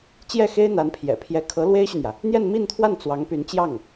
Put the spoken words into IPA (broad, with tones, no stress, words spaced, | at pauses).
t͡ɕjɛ˥˩xe˥ɪ̯n̪a˧˥npʰjɛ̰˨˩ pʰjɛ˧˥kʰɤ˧˥ lwe˥ɪ̯ɕy˨n̪jä˩ | n̪jɛ˥˧nmi˥˧nt̪ʰwa˥˩n t͡swɑ˧˥ŋpy˧˥n t͡ɕjɑ˥˩ŋ